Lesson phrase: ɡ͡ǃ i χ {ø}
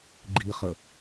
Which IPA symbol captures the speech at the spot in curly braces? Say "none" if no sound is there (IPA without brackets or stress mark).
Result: ə